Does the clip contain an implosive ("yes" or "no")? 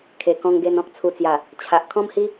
no